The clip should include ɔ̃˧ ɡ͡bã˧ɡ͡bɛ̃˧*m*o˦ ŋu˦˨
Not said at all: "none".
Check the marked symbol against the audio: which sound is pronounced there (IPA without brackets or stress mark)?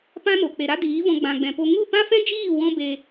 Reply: p